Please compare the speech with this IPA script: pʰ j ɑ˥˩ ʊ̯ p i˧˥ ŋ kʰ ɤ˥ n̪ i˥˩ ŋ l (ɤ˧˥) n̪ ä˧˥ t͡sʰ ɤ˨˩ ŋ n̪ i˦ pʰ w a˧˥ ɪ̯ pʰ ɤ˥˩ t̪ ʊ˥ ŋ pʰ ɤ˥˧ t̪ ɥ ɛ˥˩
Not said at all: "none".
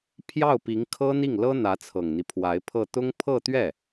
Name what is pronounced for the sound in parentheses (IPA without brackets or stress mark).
ɤ˥